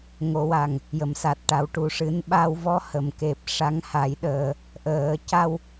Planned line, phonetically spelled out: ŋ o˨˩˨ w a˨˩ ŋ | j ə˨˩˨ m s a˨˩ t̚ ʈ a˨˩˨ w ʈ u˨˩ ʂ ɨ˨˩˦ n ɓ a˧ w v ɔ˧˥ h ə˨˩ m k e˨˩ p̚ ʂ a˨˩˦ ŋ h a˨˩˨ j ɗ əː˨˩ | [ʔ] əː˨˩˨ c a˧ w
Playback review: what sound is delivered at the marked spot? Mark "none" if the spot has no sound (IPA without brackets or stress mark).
ʔ